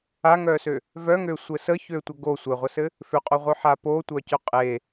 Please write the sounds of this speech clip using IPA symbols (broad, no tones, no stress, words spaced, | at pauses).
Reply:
aŋœsø | vœŋøsʷɘ səçøtʷə ɡo sʷɘʁʷəsɘ | fʏqʼoʁʷœħa potʷœcʏ qʼe